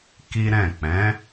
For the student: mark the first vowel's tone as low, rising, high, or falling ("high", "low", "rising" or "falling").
high